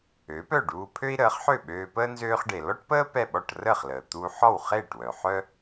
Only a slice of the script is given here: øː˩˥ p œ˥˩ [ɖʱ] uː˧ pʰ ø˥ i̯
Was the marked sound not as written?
yes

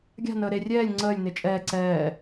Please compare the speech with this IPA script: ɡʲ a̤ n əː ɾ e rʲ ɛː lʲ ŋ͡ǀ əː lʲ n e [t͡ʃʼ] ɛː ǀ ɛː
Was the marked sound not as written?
no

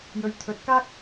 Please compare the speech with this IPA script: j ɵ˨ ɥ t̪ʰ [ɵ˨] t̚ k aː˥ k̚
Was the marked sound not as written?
no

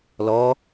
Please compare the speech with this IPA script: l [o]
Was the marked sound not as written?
yes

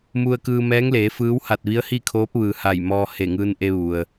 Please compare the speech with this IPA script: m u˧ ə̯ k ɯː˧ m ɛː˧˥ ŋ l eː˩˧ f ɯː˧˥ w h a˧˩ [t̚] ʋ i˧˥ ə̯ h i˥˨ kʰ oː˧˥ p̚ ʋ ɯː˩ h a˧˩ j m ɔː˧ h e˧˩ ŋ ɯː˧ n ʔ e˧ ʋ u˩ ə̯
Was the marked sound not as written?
no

